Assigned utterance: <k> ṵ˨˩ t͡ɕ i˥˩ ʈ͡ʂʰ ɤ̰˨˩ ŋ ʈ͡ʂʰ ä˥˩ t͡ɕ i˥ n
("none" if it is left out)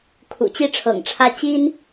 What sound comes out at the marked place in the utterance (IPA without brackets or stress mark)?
kʰ